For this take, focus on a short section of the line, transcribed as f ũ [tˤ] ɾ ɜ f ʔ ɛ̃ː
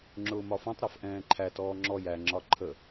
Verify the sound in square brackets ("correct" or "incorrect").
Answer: correct